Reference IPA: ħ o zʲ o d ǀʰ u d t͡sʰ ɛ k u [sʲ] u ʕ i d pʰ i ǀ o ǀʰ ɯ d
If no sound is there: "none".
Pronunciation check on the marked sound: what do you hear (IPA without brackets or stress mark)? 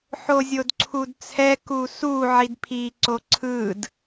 s